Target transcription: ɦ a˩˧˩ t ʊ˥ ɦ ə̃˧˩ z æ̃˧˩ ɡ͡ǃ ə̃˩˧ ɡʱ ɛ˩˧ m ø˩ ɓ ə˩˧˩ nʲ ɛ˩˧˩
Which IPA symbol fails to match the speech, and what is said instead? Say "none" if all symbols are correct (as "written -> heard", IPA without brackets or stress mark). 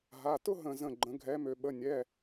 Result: æ̃˧˩ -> ə̃˧˩